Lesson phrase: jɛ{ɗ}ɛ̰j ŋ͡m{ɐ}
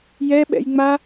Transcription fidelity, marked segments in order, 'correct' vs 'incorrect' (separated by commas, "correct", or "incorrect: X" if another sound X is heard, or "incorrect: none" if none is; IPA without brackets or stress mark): incorrect: ɓ, incorrect: a